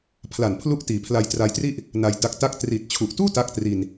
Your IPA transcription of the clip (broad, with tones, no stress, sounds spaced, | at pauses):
pʰ l a˨˩ n pʰ l u˦˥ ʔ t iː˨˩ pʰ l a˧ j t r a˧ j t r i˥˩ ʔ | n a˧ j d a˦˥ k̚ t a˥˩ k̚ t r iː˨˩ t̚ t͡ɕʰ u˨˩ ʔ t uː˥˩ t a˥˩ k̚ t r i˧ n